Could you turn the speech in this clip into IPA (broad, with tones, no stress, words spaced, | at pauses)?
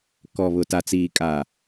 kɔ˨βʊ˨ ta˨t͡siː˨kʼa˨